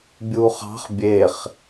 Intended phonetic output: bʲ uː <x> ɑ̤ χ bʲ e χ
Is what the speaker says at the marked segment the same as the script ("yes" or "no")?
no